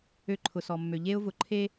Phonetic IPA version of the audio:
ø˦ǃʰʊ˨sɔ˨mːø˨ ʎe˦ʊ̯vʊ˨ ǃʰe˦

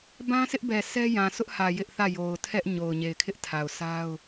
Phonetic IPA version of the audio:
bã˦sʰɪ˦ʔbɛ˨ sʰɛ˦jã˨sʊ˦ʔhä˨ jɪ˦ʔθä˦˨jo˨ʊ̯ tʰɛ˦ʔɲo˨ʊ̯ ɲe˨ɪ̯kʰɪ˦ʔtʰa˨ʊ̯sʰa˦ʊ̯

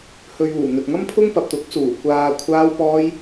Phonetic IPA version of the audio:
hɵ˨ɥuː˨˩ n̪ɵ˨t̚ŋɐ˥mpʰʊ˥ŋ pɐ˨p̚t̪ʊ˨˥k̚suː˨˩ kʷaː˨ kʷʰaː˧wpɔː˧j

